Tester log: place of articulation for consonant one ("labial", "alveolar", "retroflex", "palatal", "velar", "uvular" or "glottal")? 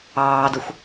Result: alveolar